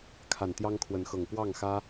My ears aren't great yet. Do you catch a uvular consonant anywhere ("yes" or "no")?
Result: no